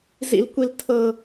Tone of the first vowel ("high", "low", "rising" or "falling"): low